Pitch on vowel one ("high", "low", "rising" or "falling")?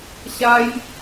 high